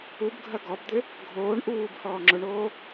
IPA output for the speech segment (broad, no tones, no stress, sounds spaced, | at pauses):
u b ɡʱ ɐ ɡ ɔ b d̪ ɪ | ɡʱ oː ɳ ʔ uː b h ɔː ŋ͡ǁ ʊ ɳ oː